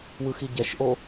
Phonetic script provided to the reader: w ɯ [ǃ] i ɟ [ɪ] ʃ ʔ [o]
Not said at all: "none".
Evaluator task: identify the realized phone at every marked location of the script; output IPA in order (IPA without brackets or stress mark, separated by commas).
x, ɛ, o